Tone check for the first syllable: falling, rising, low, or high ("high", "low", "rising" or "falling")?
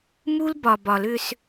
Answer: high